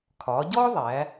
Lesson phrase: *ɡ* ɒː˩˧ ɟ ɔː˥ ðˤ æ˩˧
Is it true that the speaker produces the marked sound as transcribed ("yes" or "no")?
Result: no